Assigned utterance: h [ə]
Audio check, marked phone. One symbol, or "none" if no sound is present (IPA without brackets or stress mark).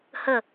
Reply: ə